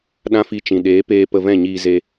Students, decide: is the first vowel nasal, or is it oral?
nasal